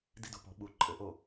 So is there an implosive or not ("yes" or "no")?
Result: yes